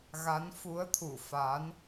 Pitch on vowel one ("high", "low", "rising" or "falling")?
rising